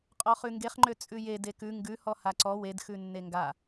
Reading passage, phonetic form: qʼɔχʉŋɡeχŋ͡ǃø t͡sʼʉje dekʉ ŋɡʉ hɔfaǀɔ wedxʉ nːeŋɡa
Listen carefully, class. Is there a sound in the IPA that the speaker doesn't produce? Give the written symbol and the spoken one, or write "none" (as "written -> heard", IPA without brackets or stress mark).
f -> h